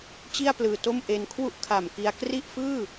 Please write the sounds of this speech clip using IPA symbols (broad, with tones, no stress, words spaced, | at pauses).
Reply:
t͡ɕi˥˩a̯plɯː˨˩to˥˩mʔe˧n kʰwu˥˩ʔkʰa˨˩mki˧a̯ kri˥˩ʔfɯː˥˩